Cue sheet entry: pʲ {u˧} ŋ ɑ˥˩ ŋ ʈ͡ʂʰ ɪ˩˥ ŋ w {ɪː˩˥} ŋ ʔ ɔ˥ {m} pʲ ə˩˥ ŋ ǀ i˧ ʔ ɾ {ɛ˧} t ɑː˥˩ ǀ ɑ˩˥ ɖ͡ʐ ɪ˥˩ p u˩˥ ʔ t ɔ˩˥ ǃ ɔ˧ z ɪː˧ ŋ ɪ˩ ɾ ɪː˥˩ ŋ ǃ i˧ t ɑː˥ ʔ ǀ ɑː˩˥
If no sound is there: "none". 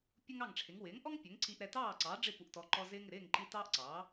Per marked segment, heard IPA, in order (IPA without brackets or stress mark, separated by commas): u˥, ɪː˩˥, ŋ, ɛ˧